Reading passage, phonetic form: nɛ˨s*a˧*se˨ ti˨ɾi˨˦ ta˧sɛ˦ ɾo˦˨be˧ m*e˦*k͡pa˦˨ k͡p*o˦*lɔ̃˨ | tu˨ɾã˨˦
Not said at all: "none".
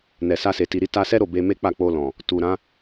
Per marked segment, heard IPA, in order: a˧, e˦, o˧

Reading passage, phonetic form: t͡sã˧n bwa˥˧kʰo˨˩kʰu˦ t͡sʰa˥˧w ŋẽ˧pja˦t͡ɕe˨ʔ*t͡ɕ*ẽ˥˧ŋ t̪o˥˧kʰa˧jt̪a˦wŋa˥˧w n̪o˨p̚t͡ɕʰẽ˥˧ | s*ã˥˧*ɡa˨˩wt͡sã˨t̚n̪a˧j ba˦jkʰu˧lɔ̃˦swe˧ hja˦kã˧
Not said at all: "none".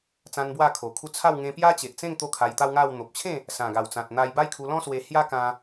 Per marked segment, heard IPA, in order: t͡s, ã˨˩

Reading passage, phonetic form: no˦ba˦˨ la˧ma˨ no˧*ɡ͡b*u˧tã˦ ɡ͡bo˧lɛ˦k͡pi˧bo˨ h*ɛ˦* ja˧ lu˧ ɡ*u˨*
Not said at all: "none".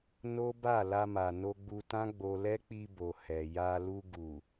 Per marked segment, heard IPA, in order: ɡ͡b, ɛ˨, u˨

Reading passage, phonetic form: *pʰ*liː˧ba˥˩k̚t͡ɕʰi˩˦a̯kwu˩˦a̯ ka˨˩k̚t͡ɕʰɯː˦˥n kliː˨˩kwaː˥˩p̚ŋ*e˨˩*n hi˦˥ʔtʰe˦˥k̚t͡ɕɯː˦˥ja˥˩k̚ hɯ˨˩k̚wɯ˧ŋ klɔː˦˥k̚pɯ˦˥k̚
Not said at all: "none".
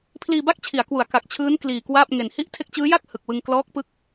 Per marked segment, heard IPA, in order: pʰ, e˨˩

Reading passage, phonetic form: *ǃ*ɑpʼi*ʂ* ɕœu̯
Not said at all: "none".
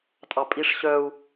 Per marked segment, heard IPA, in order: tʼ, ʂ

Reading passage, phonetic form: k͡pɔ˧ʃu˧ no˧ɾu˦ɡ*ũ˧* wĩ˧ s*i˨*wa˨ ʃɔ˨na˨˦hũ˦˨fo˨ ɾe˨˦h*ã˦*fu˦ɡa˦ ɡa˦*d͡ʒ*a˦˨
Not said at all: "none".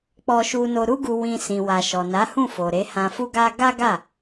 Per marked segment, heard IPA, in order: u˧, ĩ˨, ã˧, ɡ

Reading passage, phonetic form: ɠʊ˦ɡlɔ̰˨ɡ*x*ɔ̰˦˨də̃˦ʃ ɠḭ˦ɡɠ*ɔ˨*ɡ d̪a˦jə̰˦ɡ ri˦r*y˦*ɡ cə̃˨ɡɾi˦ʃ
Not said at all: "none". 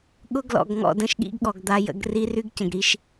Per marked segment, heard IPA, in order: ŋ, ɔ˨, y˦

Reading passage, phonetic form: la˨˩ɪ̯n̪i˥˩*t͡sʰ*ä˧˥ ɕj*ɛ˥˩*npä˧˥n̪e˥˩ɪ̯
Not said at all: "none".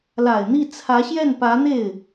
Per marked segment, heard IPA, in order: t͡sʰ, ɛ˥˩

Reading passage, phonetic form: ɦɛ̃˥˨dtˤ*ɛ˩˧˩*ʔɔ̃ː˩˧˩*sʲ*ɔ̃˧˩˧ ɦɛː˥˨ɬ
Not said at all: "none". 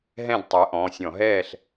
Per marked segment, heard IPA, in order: ɛ˨˥, sʲ

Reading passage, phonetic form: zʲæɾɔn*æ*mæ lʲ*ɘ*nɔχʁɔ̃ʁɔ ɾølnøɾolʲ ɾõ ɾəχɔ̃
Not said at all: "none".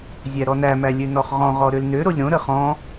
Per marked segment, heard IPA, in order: æ, ø

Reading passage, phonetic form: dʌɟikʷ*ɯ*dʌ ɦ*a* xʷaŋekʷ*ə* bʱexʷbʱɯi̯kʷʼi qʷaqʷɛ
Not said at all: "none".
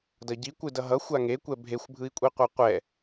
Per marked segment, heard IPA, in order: ɯ, ʌ, ɛ

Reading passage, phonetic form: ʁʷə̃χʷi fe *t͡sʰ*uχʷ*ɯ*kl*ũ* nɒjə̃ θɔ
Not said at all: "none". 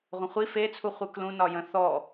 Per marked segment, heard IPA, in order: t͡sʰ, ɯ, ũ

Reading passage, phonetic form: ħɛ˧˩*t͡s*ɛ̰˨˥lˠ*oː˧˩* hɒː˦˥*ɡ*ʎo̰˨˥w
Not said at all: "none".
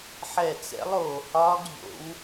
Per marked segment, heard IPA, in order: t͡s, oː˧˩, ɡ

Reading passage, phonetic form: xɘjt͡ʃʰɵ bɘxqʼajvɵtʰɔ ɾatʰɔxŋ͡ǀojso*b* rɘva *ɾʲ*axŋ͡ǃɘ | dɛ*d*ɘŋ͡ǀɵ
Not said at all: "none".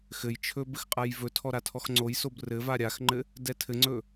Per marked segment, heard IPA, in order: b, ɾʲ, tʰ

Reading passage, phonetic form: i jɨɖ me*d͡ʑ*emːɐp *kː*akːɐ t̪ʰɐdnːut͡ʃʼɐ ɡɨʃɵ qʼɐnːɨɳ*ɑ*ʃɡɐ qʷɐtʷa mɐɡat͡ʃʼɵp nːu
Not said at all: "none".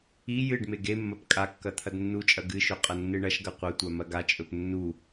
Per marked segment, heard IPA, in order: ɡ, kʼ, ɐ

